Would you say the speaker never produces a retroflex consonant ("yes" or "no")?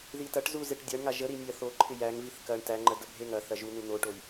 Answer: no